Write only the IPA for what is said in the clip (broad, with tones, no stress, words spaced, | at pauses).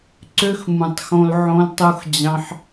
ǀø˦xmũ˨tˤxõ˧l ʕõ˧ltˤu˧xd͡ʑɑ̃˧ħ